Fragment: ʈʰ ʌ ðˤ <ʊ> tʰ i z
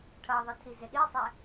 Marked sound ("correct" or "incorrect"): incorrect